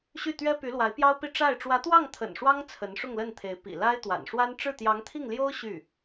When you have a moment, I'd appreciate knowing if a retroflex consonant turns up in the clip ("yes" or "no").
yes